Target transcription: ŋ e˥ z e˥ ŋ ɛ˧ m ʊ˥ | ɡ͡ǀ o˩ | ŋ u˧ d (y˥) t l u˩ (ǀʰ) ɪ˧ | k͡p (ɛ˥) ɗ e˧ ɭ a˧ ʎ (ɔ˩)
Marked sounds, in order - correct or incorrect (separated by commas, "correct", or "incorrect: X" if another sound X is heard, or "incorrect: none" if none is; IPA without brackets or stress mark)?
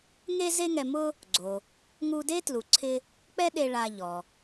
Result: incorrect: e˥, correct, correct, correct